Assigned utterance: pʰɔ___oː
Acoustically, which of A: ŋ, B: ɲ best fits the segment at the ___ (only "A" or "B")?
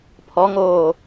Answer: A